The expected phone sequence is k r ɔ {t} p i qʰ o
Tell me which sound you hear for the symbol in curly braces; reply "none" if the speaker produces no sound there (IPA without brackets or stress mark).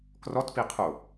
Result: t